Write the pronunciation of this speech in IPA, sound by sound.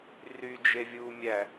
r y d͡ʒ e vʲ uː mʲ æ

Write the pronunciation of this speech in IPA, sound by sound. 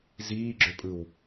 z iː ɡ͡ǁ ø pʼ ɯ w

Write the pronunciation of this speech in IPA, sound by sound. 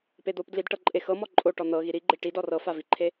p e d̪ o p d l i d ʈ ɤ ǃʼ e x ɤ m ɔ ǃʼ o ʈ ɔ n̪ ɤ ɣ i ɾ i ɡ͡ǃ e ʈ i d ɔ r ɤ f a v i ǃʰ e

